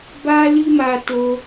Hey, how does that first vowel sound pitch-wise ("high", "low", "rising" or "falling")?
high